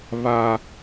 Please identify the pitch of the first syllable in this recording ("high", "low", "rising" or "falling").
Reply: high